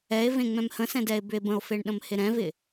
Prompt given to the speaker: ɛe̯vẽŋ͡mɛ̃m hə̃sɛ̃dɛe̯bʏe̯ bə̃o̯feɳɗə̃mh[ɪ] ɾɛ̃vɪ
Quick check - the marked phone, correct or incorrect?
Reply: correct